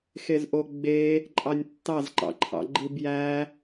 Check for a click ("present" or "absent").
present